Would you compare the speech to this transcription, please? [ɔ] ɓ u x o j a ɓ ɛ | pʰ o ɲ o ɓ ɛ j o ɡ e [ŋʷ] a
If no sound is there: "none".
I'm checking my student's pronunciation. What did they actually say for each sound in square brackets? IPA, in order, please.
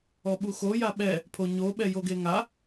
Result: ɔ, ŋ

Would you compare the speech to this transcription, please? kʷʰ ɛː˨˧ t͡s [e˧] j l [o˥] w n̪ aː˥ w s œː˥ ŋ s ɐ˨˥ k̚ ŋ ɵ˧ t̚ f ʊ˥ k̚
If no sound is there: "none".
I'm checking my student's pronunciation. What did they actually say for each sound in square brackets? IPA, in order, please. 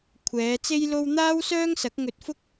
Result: e˥, o˥

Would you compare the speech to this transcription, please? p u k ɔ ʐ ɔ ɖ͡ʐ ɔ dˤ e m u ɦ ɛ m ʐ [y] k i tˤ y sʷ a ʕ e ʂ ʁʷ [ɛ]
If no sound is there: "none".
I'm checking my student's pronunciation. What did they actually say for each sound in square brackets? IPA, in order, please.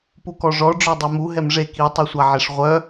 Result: e, œ

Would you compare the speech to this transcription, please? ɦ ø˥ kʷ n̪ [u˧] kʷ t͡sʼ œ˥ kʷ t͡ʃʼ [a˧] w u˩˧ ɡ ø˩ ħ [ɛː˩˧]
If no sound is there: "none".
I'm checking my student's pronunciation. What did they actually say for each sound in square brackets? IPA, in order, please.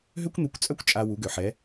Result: u˧, a˧, ɛ˩˧

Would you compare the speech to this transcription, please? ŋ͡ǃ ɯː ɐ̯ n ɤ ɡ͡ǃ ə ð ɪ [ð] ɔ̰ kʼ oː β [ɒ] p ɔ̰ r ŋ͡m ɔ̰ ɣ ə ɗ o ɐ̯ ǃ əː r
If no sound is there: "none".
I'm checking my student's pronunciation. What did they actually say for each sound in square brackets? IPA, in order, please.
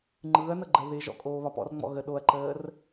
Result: ʒ, ɒ

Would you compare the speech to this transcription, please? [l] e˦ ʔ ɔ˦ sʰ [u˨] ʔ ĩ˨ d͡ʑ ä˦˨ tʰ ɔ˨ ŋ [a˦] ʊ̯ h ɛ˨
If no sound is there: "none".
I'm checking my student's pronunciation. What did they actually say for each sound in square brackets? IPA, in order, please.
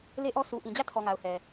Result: l, u˨, a˨

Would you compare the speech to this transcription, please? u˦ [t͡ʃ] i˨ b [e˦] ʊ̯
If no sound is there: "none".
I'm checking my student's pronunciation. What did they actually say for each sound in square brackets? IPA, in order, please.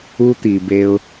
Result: t̪, e˦

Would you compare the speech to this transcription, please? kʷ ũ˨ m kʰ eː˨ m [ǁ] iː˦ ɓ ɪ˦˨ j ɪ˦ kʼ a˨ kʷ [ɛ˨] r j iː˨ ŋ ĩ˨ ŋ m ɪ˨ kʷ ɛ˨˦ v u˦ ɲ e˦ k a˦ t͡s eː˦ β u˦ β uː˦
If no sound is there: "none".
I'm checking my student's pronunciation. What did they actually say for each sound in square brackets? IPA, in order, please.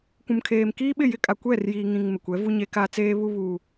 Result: k, ɛ˦˨

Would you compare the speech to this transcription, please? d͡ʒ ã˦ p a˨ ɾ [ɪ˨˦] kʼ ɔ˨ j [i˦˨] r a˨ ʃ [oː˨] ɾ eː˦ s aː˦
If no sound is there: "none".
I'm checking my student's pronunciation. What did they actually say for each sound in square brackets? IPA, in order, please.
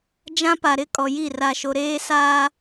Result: ɪ˦, i˦˨, o˨

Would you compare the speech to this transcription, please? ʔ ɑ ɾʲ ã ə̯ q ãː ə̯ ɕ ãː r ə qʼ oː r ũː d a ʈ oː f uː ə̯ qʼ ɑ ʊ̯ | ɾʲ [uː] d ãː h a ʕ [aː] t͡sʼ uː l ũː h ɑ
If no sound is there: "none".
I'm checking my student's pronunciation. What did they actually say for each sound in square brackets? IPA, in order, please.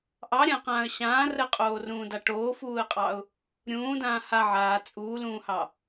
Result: ũː, aː

